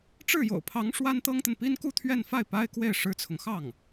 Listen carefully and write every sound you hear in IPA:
ʈ͡ʂ ɻ̩˥˩ j o̰˨˩ ʊ̯ pʰ ɑ˧˥ ŋ ʂ w a˥ n t̪ ɤ˥ ŋ t̪ ə˨ n p i˥ n k u˥˧ t̪ʰ ɥ ɛ˥˧ n f a˥˩ ɪ̯ p a˥ ɪ̯ k w e˥˩ ɪ̯ ʂ ɻ̩˥ t͡sʰ ʊ˨ ŋ x ɑ˥˩ ŋ

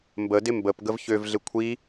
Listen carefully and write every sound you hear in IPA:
m b ə d ɪ m b ə p ɡ ə v ç ø v ɮ ɪ kʷʰ i

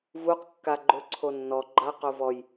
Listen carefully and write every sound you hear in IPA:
v u q kː a ɡ͡ǃ ʊ ǀʰ o nː ɔ ɡ͡ǃ a q o v ɔ j

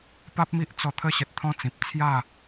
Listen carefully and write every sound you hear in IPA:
p a˦ p̚ m i˦ ʔ t͡s ɔ˧ t̪ʰ ə˦ ɕ ə˨ t̚ t̪ʰ ɔ̃˦ t͡s ĩ˨ p̚ t͡sʰ j a˥˧

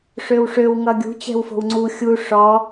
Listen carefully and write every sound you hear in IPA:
ʂ ø w ʂ ø w ŋ ʌ ɡʲ ṳ t͡ɕ ɛ̤ w f o̤ w ŋ͡ǀ u xʲ u ʂ ɔ

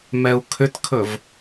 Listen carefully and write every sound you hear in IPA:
m ɛ u̯ kʰ ʏ t kʰ ɵ v

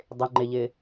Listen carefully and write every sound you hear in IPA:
dˤ ɪ ŋ͡ǃ ɪ ʎ ɪ

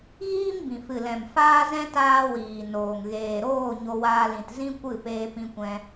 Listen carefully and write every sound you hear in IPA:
ɣ iː˦ m b ĩ˨ f ɨ˨ l ɛ̃˨ m f aː˦ z ɛ̃˦ t aː˦ w iː˨ n oː˨ ŋ ɣ eː˨ ɾ oː˦˨ ɲ o˧ w aː˧ l ĩ˨ t z ĩ˦ kʷ ɨ˦˨ p eː˧ p ĩ˧ kʷ ɛ̃˧

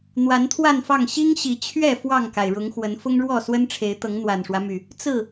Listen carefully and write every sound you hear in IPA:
n̪ w a˨˦ n t̪ʰ w a˥˨ n f ɑ˥˨ ŋ ɕ i˦ ŋ ɕ i˨˩ t͡ɕʰ ɥ ɛ˥˨ f w ɑ˥˨ ŋ k a˩ ɪ̯ ɻ ʊ˨˦ ŋ x w ə˨˦ n f ʊ˦ ŋ ɻ w ɔ˥˨ s w ə˦ n ʈ͡ʂʰ e˨˦ ɪ̯ t̪ ɤ˨˦ ŋ n̪ w a˨˩ n ʂ w ä˦ m y˨˩ | t͡s ɹ̩˥˨

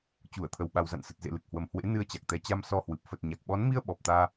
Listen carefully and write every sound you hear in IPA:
t͡ɕ u˧˩ ə̯ t̪ʰ ə˨˩ w ɓ a˨˩ w z a̰˧˨ n s ə˨˩ t̚ z ḛ˧˨ l ɨ˨˩ k̚ h w ə˨˩ m h w ḛ˧˥ n ɨ˧ ə̯ t͡ɕ a˨˩ k̚ t̪ ɛ˨˦ t͡ɕ a˧ m s ɔ˧ h w ɨ˨˩ p̚ f ə˨˩ t̚ ɲ a˨˩ k̚ ɓ ɔ˨˦ n m i˧ ə̯ ɓ ɔ˨˩ p̚ t̪ aː˧

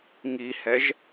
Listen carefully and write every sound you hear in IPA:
ŋ i h ɛ ʒ

